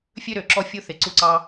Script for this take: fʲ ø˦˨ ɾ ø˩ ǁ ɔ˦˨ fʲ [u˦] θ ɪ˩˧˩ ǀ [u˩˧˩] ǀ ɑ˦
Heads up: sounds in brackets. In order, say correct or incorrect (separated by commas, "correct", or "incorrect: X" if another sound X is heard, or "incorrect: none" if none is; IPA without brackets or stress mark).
correct, incorrect: u˦˨